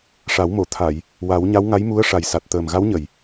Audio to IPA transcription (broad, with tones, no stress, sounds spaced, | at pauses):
ʂ a˨˩˦ w m o˨˩˨ t̪ʰ a˨˩˨ j | w a˨˩˦ w ɲ a˧˥ w ŋ a˧˥ j m u˧˥ ə̯ ʂ a˨˩ j s a˨˩ t̚ t̪ əː˨˩ m ɣ a˧˥ w ɲ ə˨˩˨ j